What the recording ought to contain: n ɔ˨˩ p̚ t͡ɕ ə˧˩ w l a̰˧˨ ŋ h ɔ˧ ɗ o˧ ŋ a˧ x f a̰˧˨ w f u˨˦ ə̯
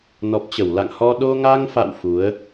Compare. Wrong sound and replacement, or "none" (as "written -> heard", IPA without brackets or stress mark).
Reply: x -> ŋ